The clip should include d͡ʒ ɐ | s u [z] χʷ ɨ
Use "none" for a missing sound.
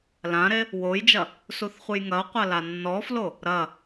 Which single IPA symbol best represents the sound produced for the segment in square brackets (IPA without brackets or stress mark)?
θ